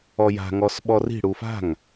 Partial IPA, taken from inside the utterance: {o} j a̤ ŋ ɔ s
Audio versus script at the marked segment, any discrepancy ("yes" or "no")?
yes